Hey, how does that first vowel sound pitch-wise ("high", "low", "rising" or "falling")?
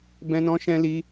high